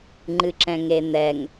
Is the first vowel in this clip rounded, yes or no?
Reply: no